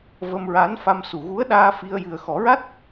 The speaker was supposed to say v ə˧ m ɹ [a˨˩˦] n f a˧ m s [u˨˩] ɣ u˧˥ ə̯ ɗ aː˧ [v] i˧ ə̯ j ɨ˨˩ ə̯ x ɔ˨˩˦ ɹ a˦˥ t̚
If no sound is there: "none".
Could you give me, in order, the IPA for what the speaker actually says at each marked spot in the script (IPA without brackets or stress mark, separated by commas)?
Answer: a˧˥, u˨˩, f